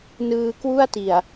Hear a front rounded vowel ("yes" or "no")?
no